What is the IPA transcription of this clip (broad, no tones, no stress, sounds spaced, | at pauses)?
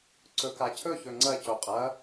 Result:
ǀ ɵ k a cʰ ɵ ç ɵ ŋ͡ǀ ɐ c o qʼ ɐ